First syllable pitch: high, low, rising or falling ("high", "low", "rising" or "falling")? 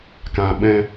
low